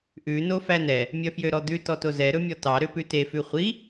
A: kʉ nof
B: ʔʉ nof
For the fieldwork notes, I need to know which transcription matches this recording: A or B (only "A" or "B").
B